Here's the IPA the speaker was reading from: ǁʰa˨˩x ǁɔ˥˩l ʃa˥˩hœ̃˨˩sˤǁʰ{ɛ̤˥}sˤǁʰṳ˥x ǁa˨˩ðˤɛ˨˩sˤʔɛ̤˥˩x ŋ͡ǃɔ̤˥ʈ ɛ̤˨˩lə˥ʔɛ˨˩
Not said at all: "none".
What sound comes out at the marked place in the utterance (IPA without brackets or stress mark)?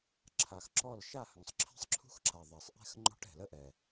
ɛ̤˥